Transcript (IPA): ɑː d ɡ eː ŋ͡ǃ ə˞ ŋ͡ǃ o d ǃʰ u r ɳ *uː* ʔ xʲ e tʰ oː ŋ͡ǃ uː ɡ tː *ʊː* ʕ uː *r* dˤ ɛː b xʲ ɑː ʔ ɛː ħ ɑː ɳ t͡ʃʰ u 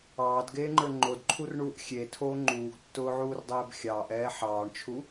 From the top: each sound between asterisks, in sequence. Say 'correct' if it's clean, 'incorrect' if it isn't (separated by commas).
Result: correct, correct, correct